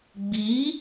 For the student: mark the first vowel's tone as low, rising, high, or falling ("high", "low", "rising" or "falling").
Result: rising